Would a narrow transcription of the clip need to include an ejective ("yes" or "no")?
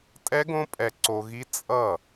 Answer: yes